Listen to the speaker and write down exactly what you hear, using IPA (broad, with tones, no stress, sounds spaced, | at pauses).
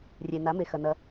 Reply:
rʲ e˨ n a˨˦ m e˨ x ɐ˨ n ɐ˧